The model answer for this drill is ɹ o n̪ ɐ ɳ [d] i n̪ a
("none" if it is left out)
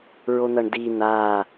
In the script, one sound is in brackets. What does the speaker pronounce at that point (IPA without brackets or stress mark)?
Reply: d